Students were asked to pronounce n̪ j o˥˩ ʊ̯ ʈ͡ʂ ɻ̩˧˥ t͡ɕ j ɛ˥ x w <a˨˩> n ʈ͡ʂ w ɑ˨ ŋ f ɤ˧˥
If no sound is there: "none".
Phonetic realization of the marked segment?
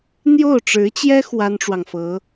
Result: a˥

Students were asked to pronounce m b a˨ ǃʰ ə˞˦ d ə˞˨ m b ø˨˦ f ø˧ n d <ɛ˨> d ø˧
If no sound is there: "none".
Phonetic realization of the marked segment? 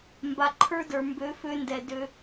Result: ɛ˨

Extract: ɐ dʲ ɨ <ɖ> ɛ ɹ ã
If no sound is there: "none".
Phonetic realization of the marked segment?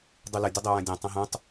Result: dˤ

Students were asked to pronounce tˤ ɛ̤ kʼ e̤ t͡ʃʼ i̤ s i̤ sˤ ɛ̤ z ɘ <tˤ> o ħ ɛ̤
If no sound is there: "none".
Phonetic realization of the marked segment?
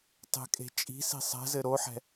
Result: ɾ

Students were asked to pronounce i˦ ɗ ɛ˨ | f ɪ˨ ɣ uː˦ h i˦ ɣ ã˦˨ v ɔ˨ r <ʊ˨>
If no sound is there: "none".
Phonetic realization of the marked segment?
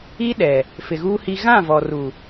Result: u˨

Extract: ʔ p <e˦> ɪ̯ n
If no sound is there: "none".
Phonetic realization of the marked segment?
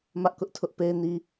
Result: e˦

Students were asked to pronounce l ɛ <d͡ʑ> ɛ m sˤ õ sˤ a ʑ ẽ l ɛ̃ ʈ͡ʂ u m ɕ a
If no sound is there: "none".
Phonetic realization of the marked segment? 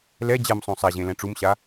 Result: d͡ʑ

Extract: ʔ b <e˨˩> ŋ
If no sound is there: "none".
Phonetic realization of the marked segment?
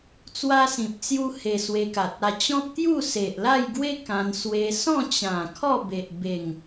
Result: e˨˩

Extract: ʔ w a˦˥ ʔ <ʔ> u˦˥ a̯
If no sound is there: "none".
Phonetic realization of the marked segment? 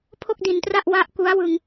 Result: k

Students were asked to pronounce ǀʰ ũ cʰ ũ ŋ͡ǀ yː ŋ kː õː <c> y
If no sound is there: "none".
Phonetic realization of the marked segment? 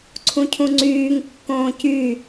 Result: c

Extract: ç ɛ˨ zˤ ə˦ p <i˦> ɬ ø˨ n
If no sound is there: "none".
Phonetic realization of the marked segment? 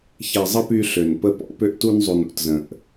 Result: y˦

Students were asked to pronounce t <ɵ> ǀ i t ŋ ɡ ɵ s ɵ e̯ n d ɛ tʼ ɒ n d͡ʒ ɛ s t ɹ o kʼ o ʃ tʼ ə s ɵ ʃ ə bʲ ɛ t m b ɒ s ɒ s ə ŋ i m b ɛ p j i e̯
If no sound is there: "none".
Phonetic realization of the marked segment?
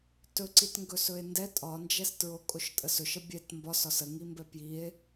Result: ɵ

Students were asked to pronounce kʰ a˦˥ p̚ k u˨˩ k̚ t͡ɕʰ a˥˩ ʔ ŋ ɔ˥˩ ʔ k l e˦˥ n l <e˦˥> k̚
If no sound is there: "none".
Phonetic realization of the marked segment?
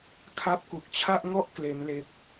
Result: e˦˥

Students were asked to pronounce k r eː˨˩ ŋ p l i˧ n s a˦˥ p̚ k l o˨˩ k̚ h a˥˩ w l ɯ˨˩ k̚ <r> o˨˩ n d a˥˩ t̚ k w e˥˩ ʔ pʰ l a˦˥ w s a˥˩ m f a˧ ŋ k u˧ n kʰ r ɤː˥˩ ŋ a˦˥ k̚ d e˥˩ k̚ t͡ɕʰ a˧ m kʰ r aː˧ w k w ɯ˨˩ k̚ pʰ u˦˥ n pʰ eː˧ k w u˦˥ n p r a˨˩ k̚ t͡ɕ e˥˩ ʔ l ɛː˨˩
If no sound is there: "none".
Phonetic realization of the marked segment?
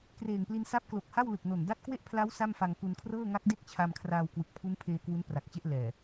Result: n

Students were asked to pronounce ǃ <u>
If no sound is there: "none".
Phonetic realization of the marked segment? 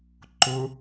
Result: ʊ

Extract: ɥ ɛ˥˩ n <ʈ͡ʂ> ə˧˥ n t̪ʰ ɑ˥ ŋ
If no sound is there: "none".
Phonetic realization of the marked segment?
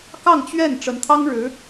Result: ʈ͡ʂ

